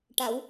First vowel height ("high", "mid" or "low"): low